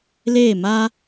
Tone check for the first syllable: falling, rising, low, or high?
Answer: falling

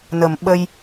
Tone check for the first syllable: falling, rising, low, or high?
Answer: low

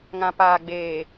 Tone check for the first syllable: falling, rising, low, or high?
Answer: low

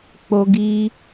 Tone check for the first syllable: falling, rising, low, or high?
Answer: high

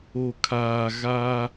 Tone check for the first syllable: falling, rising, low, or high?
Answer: low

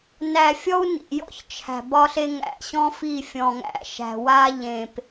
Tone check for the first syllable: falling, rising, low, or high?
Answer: low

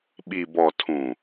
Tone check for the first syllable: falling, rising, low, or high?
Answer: low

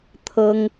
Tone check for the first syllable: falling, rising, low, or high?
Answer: high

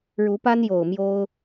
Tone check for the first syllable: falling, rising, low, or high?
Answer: rising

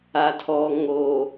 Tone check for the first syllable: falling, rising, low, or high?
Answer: low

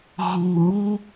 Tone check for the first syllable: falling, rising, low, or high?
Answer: low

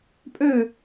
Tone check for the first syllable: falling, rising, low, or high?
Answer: falling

